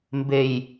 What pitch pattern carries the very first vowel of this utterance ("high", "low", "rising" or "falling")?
low